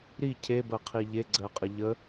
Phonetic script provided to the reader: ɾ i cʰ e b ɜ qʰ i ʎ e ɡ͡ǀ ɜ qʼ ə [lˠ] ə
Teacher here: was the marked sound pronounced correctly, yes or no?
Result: no